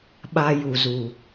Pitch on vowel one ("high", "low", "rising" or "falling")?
high